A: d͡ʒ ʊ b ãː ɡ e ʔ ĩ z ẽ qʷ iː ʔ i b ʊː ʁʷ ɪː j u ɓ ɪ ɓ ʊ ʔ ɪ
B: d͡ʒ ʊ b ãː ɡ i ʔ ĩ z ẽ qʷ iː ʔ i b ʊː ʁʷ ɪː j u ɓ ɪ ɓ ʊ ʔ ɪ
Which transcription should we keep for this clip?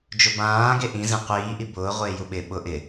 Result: A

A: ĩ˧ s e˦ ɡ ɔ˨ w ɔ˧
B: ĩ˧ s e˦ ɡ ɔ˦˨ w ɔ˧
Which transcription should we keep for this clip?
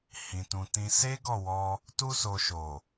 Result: B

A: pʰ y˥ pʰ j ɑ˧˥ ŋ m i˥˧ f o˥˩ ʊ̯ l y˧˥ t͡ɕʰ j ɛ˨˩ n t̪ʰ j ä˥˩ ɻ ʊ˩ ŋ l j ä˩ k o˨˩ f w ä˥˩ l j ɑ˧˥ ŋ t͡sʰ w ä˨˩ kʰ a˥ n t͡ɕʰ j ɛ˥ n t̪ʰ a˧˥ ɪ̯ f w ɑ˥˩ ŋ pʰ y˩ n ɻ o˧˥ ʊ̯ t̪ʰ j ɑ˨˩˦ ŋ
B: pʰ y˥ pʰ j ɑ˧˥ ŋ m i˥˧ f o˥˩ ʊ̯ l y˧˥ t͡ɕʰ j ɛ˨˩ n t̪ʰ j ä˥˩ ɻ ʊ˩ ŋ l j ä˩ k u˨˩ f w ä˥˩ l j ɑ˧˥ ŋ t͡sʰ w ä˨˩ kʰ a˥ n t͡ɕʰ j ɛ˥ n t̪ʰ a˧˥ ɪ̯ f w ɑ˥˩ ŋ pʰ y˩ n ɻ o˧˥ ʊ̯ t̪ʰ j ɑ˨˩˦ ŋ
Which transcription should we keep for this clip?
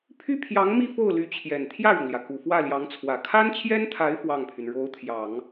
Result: B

